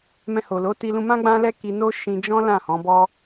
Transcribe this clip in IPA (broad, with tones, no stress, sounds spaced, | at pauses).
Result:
m ɛ̃˧ h o˨ l o˨˦ t i˧ l ũ˧ m ã˦ ɡ͡b ã˦ l ɛ˦ k i˧ n o˦ ʃ ĩ˧ d͡ʒ ɔ̃˦ l ã˦˨ h ɔ̃˨˦ b ɔ˦